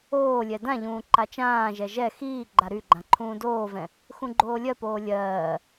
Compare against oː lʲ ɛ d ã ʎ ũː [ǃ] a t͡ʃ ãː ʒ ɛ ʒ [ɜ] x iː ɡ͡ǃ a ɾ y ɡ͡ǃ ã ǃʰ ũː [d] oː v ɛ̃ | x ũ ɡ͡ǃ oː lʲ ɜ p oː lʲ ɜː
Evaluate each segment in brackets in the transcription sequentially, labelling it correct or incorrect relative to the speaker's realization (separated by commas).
correct, incorrect, correct